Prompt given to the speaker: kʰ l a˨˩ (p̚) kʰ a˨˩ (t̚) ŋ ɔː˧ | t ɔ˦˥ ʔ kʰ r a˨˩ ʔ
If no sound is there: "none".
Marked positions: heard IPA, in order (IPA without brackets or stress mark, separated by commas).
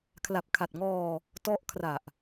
p̚, t̚